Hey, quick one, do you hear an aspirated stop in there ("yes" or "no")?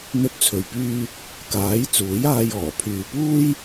yes